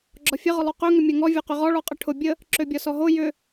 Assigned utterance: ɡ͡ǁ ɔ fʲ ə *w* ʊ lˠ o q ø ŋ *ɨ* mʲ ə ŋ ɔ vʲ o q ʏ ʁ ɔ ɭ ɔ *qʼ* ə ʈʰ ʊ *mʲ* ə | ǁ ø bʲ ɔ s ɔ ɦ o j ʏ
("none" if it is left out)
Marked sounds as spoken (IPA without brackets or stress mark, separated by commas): ʁ, ʏ, qʼ, bʲ